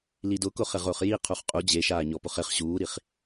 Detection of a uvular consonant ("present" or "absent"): present